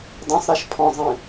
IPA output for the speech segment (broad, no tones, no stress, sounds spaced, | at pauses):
dˤ ĩ sˤ ɾ a ʃ pʰ ɔ̃ zˤ ĩ